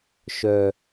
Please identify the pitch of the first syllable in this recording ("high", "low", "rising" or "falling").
low